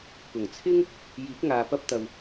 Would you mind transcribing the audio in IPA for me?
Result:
k ʊ˨˩ ŋ t͡sʰ ɪ˥ ŋ | j iː˨˥ k̚ ŋ aː˨ p ɐ˧ p̚ t̪ ɐ˨ w

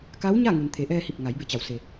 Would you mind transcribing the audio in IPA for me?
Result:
k a˧˥ w ɲ a˥˨ ŋ u˩ n t̪ʰ e˩˧ ʔ ɛː˧ h i˧˩ p̚ ŋ a˩˧ j b e˧˩ t͡ɕ a˩˧ w s e˩

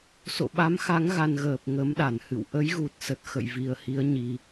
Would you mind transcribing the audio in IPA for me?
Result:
s o̰˧˨ ɓ a˨˦ m x a˨˦ ŋ ɣ a˧ n ɣ əː˨˩ p̚ ŋ ə˨˦ m ɗ a˧˩ n h ɨ̰˧˨ w ʔ ə˨˦ j ɣ u˨˩ t̚ s ə˨˩ t̚ x ə̰˧˨ j v i˨˩ ə̯ h i˨˦ ə̯ ɲ i˧

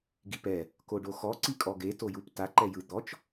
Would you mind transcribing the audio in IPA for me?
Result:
ɡ i p ɛ | k o ɖ o x ɔ ǀ i kʼ ɔ ɡ e t o j u p t a ǃ ɛ j ɯ d̪ ɔ t͡ʃ

